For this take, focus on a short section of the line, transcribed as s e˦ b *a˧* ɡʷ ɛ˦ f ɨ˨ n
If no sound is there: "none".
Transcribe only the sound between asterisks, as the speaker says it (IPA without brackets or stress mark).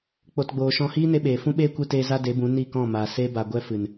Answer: a˧